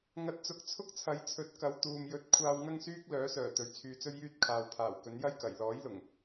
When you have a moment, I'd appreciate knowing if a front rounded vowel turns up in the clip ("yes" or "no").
yes